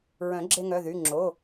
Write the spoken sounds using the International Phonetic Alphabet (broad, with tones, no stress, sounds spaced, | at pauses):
ɹ œ̃˨˩˦ ɡ͡ǁ e˧ ŋ œ˩˧˩ ð y˩˧˩ ŋ͡ǁ o˩˧˩